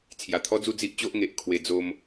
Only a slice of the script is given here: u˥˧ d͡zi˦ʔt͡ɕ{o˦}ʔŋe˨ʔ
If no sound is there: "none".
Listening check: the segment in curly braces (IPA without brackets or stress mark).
o˦